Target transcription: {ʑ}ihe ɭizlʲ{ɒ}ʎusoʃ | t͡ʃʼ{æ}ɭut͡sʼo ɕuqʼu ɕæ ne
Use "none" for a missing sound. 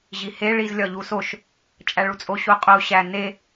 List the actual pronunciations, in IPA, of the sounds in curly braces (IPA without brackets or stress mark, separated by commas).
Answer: ʑ, ɒ, æ